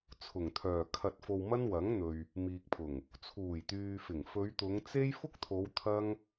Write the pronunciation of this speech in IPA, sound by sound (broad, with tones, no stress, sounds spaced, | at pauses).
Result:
t͡sʰ ʊ˨˩ ŋ t̪ʰ œː˨˩ kʰ ɐ˧ t̚ f o˧ w m ɐ˥ n w ɐ˨˥ ŋ n̪ ɵ˨ ɥ | m iː˨ k̚ pʰ ʊ˨˩ ŋ | t͡sʰ uː˨˩ j t̪ yː˨ f ɪ˨˩ ŋ f ɵ˨˧ ɥ t̪ ʊ˨˧ ŋ t͡s e˥ j f ʊ˥ k̚ t̪ʰ o˨˧ w t̪ʰ ɐ˥ ŋ